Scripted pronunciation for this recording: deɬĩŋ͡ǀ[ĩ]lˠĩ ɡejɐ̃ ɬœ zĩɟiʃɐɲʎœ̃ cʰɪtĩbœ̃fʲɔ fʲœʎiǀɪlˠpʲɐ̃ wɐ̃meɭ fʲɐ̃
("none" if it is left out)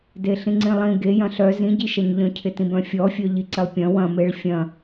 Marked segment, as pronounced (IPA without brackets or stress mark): ĩ